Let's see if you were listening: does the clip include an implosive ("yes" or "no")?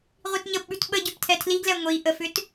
yes